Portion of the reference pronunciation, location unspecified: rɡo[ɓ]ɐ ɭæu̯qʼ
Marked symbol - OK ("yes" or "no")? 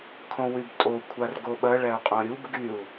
yes